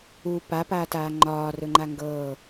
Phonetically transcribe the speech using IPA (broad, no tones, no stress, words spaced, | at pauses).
u papaːtaː ŋ͡ǃɒːrɵŋ͡ǃa ŋɡɤː